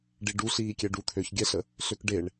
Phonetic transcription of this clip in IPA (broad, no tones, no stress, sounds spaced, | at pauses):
ɖ i ɖ u ɬ iː kʲ ɛ ɖ u t̪ʰ ø ç ɡʲ ɛ ɬ ə | ɬ ø k ɖ e ɳ